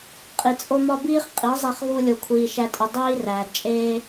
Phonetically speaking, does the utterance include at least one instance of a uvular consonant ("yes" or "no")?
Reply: yes